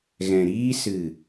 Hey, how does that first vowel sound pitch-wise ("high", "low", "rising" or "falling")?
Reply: low